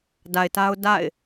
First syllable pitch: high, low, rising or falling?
low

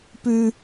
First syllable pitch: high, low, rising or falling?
high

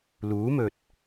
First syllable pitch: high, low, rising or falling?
rising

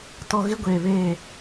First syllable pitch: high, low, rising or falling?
high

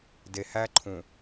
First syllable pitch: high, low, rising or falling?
low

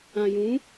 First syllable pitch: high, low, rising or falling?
low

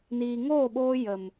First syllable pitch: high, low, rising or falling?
low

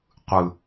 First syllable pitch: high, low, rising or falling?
low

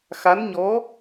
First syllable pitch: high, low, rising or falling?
rising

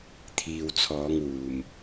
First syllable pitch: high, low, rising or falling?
low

